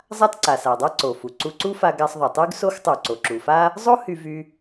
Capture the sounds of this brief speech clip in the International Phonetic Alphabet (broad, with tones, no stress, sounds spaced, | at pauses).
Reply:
zˤ a˥ t ǀ a˩ s a˩ dˤ a˥ ǀ o˩ f u˩ ǀ u˧ ǀ u˥ f a˧ ɡ a˧ sˤ ðˤ o˩ tˤ y˥ ɡ s o˥ x tˤ u˩ ǀ o˩ ǁ u˩ f a˥ | zˤ o˥ h y˧ v y˧